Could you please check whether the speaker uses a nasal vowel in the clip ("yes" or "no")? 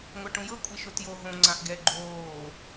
yes